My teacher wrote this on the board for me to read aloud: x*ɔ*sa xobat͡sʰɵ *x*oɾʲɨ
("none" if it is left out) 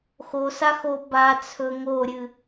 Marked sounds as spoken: o, ŋ

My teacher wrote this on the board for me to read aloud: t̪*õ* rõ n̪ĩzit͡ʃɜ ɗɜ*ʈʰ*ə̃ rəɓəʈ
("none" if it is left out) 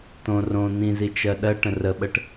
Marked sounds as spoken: õ, ʈ

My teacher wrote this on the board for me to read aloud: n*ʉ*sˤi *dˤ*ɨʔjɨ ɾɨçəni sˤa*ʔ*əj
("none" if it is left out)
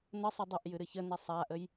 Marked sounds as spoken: ə, dˤ, ʔ

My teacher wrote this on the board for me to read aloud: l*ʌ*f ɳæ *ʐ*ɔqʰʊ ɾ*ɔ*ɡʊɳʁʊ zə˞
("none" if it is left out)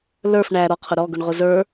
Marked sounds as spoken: ə˞, ɾ, ɔ

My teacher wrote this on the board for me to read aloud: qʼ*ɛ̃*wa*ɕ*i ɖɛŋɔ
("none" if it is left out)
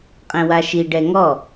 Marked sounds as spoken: ɛ̃, ʃ

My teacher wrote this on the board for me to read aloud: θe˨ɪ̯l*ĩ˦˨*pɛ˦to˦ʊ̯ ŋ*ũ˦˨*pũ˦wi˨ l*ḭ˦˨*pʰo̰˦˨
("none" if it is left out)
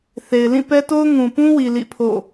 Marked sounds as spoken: ĩ˦˨, ũ˨, ḭ˦˨

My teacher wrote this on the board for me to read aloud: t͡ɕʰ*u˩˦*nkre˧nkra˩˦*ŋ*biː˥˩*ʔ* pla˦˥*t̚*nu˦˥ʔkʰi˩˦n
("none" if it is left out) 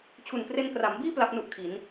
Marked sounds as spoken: u˨˩, m, none, p̚

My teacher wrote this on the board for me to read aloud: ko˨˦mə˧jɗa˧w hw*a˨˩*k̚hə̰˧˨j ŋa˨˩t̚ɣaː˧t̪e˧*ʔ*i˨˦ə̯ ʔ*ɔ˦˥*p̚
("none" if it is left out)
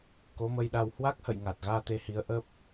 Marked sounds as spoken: a˦˥, h, ə˦˥

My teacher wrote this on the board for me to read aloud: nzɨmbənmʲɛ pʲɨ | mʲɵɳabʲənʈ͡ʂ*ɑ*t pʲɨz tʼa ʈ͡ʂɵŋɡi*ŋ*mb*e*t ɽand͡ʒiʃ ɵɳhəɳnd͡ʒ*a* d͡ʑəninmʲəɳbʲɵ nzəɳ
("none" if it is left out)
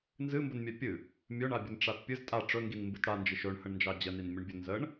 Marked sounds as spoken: a, n, ɨ, ɑ

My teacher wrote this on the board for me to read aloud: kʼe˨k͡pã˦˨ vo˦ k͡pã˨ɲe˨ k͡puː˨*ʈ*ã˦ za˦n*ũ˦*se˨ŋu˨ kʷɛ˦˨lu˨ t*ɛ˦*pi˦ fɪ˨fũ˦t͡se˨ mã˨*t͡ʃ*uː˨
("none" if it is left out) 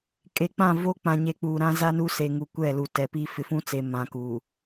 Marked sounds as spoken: ɾ, u˦, ɛ˨, k

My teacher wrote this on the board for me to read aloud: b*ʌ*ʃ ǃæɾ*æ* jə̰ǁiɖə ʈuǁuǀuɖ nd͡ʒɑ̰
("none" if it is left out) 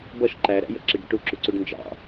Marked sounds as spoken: ʌ, æ̰

